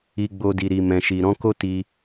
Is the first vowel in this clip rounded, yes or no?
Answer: no